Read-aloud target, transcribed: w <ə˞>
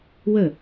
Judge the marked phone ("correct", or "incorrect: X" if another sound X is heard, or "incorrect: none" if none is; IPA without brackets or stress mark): incorrect: ə